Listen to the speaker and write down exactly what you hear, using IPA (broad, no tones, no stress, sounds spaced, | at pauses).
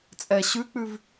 t͡sʼ ɛ ɕ ʉ k͡p ʉ v